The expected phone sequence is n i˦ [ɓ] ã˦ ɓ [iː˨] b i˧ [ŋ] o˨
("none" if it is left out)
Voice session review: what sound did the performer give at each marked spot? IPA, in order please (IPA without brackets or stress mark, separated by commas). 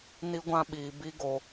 ɡʷ, iː˨, ɡ